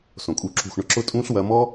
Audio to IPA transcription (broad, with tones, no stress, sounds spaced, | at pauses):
s õ˨ kʼ u˧ ǁ ṳ˦˨ x ɳ ʊ˧ ǁ ʊ˦ tʼ ũː˦ ɬ w ɐ˧ m ɔ˦